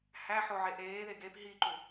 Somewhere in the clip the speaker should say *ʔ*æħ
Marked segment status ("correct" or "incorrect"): incorrect